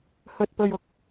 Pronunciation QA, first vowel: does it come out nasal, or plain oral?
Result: oral